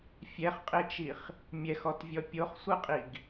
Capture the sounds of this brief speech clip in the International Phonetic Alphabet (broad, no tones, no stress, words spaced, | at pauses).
fʲɛχqʼet͡ʃiχ | mʲɛxɔtvʲɔ pʲoχsʷɯqʼiɡ